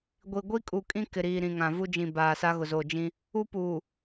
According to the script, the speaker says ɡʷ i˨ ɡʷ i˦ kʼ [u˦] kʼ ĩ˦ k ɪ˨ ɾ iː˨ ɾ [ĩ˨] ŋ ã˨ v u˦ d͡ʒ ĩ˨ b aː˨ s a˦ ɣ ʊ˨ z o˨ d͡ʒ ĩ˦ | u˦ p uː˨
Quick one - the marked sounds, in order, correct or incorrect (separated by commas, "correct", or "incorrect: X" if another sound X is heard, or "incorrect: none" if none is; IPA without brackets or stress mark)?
incorrect: u˨, correct